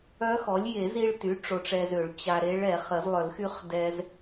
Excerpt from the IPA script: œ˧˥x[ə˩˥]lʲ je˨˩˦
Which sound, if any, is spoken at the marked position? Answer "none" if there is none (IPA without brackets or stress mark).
ɔ˩˥